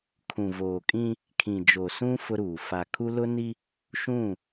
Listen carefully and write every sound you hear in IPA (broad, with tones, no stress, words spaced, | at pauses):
kʰũ˨voː˨kʼĩ˦ | kʰĩ˨d͡ʒo˨sũ˦ fʊ˦ɾuː˨ fa˨kʰu˦ lʊ˦ni˦ | ʃũ˦˨